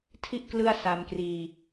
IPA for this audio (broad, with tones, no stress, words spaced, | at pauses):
tʰi˥˩ʔ klɯ˥˩a̯sa˧mkriː˧